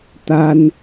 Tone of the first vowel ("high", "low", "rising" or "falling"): high